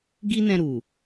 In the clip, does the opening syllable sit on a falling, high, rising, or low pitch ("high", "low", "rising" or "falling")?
high